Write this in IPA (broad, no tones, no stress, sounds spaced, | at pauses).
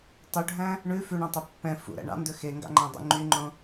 tˤ ø ɖʱ æ̃ | ɳ ʉ f ʉ ɳ œ̃ tˤ ø pː ɛ̃ f ṵ ɾ æ̰ ɳ ɑ̰ n d ɵ x e ŋ ɡ ɑ̰ ŋ͡ǃ æ̃ dˤ ṵ ŋ͡ǃ y ŋ͡ǃ õ